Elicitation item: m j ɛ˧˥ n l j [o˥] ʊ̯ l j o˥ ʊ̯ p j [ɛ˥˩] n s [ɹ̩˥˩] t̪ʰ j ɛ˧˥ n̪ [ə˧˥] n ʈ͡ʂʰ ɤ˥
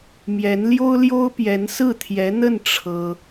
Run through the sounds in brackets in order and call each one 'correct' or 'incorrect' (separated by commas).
correct, incorrect, correct, incorrect